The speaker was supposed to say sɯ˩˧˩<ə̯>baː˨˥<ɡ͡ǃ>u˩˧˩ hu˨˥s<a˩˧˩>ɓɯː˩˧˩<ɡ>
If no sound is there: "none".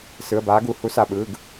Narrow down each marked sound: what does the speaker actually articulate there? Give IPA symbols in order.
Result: ə̯, ɡ, a˩˧˩, ɡ

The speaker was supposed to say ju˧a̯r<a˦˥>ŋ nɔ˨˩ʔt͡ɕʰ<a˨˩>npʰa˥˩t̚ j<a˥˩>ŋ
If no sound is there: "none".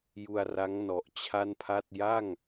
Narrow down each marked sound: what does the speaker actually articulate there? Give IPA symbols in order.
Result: a˦˥, a˥˩, a˥˩

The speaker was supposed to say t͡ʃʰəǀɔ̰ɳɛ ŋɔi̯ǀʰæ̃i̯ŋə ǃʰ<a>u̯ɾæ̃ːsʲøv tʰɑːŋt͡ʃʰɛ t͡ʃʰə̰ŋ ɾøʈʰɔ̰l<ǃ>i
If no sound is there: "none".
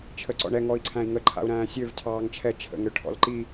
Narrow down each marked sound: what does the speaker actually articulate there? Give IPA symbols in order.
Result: a̰, ǃ

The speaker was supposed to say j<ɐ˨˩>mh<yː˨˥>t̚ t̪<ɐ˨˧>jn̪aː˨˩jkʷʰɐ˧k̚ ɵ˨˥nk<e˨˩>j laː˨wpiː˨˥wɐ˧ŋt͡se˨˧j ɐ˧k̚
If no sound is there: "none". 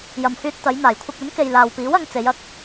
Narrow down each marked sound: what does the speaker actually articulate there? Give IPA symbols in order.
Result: ɐ˨, yː˧, ɐ˨˧, e˨

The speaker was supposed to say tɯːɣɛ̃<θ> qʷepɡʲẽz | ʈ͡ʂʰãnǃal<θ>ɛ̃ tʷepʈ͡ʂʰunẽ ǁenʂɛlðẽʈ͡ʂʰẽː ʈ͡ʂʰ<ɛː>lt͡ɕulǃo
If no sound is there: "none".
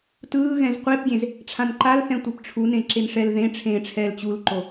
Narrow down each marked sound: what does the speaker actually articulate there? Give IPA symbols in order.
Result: z, θ, ɛː

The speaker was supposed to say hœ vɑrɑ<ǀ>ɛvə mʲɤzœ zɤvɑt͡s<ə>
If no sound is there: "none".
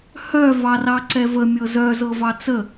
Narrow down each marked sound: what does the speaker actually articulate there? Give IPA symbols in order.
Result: ǀ, ə

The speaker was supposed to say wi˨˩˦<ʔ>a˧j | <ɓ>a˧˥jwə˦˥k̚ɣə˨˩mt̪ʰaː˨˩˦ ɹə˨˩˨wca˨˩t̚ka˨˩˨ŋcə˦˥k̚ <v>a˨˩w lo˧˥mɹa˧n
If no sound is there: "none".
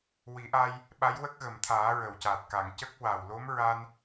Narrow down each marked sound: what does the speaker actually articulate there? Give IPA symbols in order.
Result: ʔ, ɓ, w

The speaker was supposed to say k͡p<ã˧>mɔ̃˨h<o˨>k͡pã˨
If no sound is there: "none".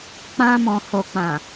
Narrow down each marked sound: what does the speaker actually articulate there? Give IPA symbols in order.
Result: ã˧, o˨

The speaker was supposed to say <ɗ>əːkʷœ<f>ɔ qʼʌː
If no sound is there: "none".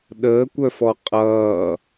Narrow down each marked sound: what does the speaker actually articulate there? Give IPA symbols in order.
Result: ɗ, f

